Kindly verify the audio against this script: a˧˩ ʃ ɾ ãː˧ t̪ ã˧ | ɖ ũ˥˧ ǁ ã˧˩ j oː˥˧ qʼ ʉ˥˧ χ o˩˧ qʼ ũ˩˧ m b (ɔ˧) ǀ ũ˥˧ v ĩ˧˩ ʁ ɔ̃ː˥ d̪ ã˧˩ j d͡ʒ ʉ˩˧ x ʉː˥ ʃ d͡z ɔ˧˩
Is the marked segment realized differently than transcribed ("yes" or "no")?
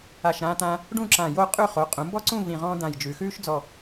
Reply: yes